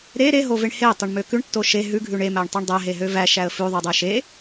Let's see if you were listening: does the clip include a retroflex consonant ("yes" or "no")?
yes